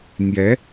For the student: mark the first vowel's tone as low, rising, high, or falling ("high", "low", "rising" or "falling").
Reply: rising